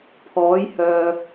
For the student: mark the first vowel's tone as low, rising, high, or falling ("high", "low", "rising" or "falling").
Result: rising